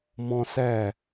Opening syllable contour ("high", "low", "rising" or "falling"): high